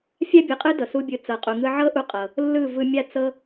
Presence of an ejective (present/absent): present